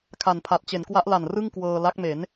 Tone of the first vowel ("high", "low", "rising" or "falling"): low